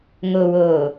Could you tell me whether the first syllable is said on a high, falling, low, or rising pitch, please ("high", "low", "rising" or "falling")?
low